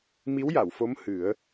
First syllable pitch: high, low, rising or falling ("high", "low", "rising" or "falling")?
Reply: rising